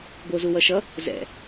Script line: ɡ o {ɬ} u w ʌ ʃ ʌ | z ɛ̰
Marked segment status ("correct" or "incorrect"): incorrect